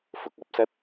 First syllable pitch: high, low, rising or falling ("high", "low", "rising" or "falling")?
low